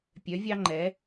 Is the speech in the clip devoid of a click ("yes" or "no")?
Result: no